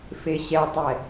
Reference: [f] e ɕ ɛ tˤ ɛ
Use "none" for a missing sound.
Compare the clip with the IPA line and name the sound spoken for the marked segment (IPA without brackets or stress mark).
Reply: f